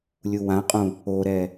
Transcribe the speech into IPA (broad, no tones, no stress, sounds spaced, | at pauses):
lʲ u w ã qʼ ũ | o ɾ ɛ